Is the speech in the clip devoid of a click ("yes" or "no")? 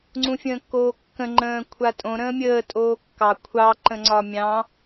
no